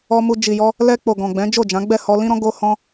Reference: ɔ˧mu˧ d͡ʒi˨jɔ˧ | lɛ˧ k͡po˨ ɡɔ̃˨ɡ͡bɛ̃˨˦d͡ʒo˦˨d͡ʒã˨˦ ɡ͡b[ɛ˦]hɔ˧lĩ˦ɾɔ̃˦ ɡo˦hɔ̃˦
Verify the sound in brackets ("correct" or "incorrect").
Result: incorrect